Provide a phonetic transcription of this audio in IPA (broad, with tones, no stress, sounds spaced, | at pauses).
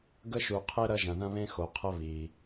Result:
ɡ ə˧ ʃ u˩ qʰ e˧ ɾ ɐ˧ ʒ ɐ̃˩ ð ɐ̃˧ β ẽ˧ x o˩ qʰ ə˧ β iː˩